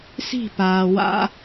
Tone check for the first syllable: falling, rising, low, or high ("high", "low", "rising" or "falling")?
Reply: falling